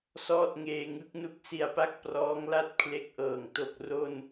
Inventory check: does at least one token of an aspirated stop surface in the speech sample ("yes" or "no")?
yes